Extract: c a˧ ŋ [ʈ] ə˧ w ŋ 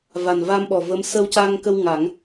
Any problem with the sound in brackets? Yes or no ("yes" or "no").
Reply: yes